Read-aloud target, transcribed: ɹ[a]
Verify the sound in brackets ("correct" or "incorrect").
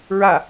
correct